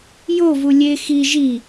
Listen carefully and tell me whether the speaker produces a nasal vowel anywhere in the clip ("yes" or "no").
no